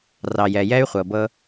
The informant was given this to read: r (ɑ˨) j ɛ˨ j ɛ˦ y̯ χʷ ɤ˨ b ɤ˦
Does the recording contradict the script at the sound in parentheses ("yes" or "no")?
no